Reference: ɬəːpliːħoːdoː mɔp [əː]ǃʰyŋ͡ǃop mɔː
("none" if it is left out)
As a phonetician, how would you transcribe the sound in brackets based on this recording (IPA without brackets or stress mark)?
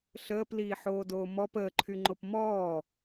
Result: əː